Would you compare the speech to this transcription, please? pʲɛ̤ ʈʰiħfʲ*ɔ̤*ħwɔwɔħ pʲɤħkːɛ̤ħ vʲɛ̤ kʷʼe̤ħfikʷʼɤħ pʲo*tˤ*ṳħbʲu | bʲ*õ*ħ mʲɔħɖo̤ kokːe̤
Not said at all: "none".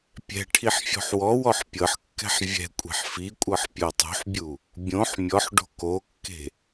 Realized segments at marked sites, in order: ɔ̤, tˤ, õ

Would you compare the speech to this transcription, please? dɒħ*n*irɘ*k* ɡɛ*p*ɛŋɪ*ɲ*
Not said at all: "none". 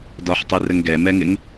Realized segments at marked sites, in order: tˤ, ŋ, m, ŋ

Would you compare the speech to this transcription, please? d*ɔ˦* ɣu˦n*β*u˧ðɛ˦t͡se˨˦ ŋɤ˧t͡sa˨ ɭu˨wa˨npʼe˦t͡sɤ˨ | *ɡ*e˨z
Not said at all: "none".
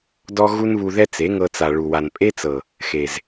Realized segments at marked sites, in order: ɔ˦, β, x

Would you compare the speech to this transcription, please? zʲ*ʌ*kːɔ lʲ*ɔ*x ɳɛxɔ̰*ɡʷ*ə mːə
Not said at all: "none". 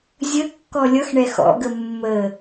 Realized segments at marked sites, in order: ə, ʌ, ɡ

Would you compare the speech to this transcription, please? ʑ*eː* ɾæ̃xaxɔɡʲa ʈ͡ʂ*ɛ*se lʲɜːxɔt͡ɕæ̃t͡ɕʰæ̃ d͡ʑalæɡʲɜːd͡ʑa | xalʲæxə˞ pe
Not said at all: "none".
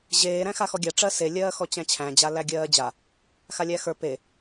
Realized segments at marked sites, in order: eː, ɜ

